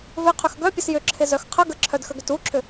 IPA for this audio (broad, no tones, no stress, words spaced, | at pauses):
vɪ qʰʏxɡœ pʲəsjʏǁʰɪ zœxqʰə ɡəǁʰœdxəɡʏt uǁʰʏ